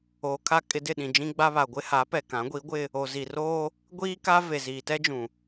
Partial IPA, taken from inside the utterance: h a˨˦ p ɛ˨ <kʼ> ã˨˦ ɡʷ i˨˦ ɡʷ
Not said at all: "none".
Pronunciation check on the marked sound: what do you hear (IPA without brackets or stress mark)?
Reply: k